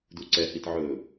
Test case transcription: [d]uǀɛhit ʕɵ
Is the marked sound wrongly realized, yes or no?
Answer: no